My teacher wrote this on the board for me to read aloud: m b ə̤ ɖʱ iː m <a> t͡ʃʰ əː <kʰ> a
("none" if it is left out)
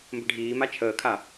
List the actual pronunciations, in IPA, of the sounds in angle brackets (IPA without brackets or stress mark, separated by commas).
a, kʰ